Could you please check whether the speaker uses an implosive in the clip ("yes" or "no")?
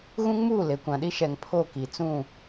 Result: yes